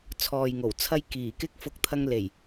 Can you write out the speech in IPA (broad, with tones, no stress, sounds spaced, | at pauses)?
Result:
t͡sʰ ɔː˨ j ŋ o˨˩ w t͡sʰ ɐ˧ j k iː˨˩ k ɪ˥ k̚ f ʊ˧ k̚ t̪ʰ ɐ˧ ŋ l e˨˩ j